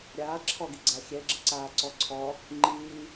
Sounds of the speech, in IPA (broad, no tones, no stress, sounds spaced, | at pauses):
ɾʲ aː ǁʰ ɔ ɡ i ɡ͡ǀ a xʲ ɛ ɡ͡ǁ ə ǀ aː ǀ ɔ ǀʰ ɔ | ŋ͡ǃ iː